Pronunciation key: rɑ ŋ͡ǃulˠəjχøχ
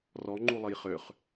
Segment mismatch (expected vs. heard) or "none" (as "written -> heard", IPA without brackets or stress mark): ɑ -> ɔ